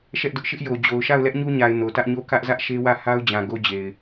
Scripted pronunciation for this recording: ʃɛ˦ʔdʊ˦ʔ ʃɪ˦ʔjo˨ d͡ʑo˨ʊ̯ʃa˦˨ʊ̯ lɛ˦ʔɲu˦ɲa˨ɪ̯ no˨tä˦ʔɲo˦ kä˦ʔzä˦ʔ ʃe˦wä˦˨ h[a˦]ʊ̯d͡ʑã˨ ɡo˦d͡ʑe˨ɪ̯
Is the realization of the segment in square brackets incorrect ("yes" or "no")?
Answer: no